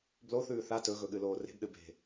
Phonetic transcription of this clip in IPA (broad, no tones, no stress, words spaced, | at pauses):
bloθʉː θa tɵɣɵɠɨloː re̤bɗɨ be̤